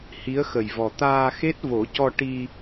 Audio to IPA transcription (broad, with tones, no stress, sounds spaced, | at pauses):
h i˧˥ ə̯ x ə˨˩ j v ɔ˨˩ t̪ aː˧ x e˦˥ t̚ v o˨˩˦ c ɔ˧ ʈ i˧